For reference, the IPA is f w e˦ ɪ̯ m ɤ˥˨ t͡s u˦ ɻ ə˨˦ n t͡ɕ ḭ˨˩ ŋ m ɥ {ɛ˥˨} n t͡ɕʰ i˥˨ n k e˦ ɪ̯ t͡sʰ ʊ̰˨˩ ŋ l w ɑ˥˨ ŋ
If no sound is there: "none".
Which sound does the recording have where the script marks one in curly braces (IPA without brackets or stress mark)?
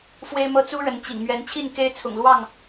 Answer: ɛ˨˦